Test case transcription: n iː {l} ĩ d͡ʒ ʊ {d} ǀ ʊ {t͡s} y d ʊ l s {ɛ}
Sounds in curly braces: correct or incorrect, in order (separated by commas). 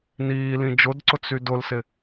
correct, correct, correct, incorrect